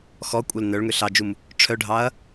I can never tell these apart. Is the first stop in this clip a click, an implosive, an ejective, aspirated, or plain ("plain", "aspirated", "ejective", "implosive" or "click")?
ejective